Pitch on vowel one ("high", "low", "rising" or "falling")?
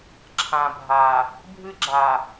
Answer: low